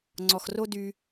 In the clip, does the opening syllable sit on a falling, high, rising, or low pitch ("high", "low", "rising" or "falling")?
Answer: low